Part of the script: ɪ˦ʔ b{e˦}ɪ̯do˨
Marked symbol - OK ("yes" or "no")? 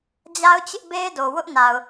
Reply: yes